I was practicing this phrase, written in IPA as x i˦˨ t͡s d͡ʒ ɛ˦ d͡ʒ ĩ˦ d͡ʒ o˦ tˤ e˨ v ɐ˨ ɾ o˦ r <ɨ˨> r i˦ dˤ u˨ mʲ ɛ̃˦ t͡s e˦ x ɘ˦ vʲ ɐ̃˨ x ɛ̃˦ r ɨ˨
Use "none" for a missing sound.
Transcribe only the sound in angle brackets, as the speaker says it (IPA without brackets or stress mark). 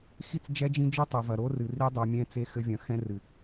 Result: ɨ˨